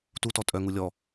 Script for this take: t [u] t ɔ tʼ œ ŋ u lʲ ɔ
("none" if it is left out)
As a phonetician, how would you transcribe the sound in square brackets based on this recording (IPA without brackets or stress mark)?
u